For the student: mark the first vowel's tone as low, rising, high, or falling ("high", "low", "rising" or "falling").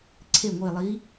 falling